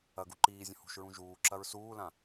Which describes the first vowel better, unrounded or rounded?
unrounded